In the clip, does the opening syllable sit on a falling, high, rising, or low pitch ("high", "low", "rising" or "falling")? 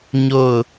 falling